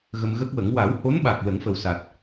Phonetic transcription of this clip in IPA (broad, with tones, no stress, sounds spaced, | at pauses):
ɣ ə˧ m ɣ ə˦˥ k̚ w ə˨˩˦ ŋ w a˨˩˦ w h o˧˥ n ɓ a˨˩ k̚ l ə˨˩˦ ŋ f ə˨˩ w s a˨˩ t̚